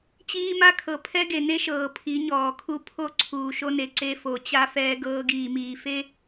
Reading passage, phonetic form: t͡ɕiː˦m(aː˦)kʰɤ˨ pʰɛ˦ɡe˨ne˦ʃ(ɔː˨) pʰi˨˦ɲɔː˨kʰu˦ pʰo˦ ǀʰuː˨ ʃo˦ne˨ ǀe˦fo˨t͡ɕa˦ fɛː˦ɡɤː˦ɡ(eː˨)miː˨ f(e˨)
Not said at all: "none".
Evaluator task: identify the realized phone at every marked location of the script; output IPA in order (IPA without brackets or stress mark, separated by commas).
a˦, ɤː˨, iː˨, e˦